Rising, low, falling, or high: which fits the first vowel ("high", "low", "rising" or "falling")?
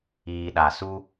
low